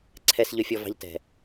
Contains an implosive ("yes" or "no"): no